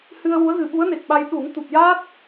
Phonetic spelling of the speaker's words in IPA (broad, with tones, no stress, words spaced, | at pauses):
hɨ˧ə̯wu˧˥ə̯ɣɨ˨˩ɓu˧˥ə̯ ne˨˩k̚ɓa˧j ɗu˨˩˦ŋ t̪u˨˩p̚jaː˦˥t̚